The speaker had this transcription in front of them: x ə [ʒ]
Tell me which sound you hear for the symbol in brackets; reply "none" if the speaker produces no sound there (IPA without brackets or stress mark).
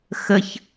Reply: ç